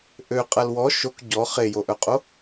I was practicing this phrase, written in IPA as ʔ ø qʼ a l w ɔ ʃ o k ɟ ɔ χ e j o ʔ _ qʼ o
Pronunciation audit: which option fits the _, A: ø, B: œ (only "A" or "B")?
B